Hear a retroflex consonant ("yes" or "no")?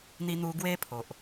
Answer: no